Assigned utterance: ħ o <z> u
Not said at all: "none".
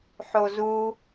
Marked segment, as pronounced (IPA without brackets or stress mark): z